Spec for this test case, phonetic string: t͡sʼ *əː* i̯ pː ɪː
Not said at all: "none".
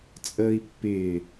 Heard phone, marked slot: əː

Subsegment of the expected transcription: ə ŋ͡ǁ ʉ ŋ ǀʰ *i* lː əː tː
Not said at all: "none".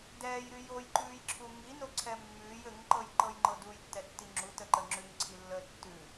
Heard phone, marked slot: i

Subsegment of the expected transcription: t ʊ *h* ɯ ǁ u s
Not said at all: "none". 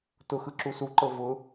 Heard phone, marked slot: x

